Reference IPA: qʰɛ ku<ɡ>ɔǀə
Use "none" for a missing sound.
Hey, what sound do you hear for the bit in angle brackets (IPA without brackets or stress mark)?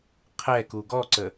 ɡ